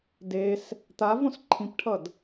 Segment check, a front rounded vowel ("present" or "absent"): absent